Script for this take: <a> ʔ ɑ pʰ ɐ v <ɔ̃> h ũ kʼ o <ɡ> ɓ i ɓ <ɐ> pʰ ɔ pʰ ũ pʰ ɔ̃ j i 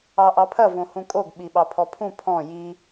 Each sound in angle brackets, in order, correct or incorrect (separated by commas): incorrect, incorrect, correct, incorrect